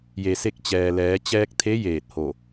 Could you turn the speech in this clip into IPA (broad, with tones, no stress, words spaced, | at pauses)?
je˩se˧k̚ t͡ɕɛː˩ lɛː˩˧ t͡ɕɛː˧k̚t̪ʰe˧˥ jeː˧˩t̚ho˧˩